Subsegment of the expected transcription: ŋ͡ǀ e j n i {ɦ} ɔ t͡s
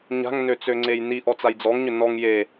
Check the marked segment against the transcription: incorrect: ʔ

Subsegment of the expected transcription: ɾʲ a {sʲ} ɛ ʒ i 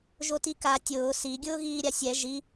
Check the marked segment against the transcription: correct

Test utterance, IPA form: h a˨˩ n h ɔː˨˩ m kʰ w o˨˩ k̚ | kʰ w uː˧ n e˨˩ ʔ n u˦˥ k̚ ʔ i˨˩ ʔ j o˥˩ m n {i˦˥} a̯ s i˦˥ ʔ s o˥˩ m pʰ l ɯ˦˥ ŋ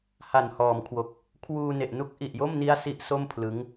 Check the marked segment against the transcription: correct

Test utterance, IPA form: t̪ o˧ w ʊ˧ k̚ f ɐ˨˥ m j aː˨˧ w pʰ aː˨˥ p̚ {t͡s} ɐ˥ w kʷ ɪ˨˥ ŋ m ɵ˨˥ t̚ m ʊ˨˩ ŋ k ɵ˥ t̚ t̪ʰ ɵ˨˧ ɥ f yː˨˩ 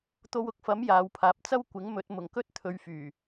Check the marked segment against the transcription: correct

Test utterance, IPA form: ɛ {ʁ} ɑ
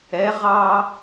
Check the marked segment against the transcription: correct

